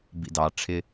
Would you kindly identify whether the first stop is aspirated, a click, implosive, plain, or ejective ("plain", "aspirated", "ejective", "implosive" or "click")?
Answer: plain